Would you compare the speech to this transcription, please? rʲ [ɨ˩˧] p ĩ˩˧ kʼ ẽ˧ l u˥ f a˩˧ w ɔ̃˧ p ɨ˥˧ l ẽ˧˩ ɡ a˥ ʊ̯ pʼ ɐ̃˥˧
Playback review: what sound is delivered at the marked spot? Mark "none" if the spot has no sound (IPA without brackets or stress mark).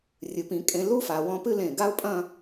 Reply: ɨ˩˧